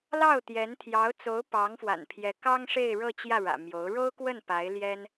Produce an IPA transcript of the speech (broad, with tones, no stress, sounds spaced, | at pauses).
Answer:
l ɑ˥˩ ʊ̯ t̪ j ɛ˧˥ n t̪ʰ j ɑ˧˥ ʊ̯ t͡s o˧˥ ʊ̯ p ɑ˧˥ ŋ f w a̰˨˩ n pʰ j ɛ˧˥ k ɑ˥ ŋ ʂ e˥˧ ɪ̯ ɻ ɤ˥˧ t͡ɕ j ä˥˩ ɻ ä̰˨˩ m j o˧˥ ʊ̯ ɻ o˥ ʊ̯ k w ə˥˩ n p a˧˥ ɪ̯ l j ɛ˥ n